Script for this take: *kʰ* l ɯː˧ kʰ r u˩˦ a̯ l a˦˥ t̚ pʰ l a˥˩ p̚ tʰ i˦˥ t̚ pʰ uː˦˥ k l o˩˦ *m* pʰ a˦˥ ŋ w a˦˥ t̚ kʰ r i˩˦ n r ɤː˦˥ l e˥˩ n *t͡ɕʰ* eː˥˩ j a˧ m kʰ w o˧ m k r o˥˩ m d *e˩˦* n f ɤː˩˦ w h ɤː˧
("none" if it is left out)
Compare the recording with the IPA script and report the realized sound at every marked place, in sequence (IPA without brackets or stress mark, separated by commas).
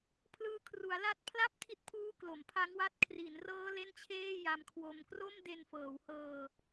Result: pʰ, m, t͡ɕʰ, e˧